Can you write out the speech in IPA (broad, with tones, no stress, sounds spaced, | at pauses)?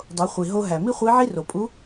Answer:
dˤ o˩˧ χʷ i˩ ɦ o˧ ɦ æ˩ m i˥ χʷ i˧˥ ʕ i˥ r o˩ pʼ u˧˥